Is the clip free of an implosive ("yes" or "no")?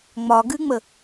yes